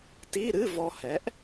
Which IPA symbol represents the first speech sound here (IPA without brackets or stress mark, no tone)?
t